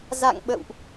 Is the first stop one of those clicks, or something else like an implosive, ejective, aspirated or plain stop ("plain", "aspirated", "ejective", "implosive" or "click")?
implosive